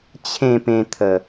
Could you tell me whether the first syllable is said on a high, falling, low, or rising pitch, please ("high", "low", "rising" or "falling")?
falling